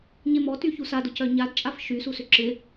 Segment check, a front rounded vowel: present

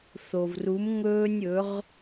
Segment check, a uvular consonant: present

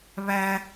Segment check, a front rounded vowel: absent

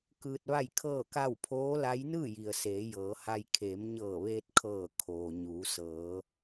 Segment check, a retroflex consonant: absent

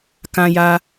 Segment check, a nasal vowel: present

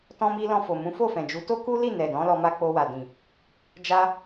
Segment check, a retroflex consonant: absent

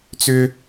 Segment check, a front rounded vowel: present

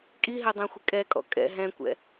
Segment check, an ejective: present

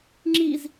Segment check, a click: present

